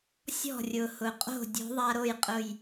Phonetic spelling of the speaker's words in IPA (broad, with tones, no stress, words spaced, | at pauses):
sʲɔ̤˧˩rʲʊ˩hʊ˩qʼo̤˧˩ dʲo̤˨˥ ðˤa˧ɾo˥˩jqʼʊ˧˩j